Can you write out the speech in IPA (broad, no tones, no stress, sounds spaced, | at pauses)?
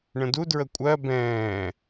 ɳ ə̃ d u d ɹ ə kʷʼ ɜ b ɛ̃ː